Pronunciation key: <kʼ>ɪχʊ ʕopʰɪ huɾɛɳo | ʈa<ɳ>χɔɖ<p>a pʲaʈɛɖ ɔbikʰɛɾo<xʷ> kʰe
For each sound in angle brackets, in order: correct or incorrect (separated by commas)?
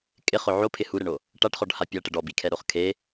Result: correct, incorrect, incorrect, incorrect